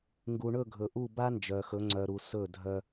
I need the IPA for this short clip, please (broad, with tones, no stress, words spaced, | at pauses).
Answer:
ŋɡu˨ɳɵ˦˨ ɡʱɵ˨ʔu˦˨ ba˦nd͡ʒœ˨xɵ˨˦ ŋ͡ǀœ˦ɾu˦ sɵ˦˨dʱœ˦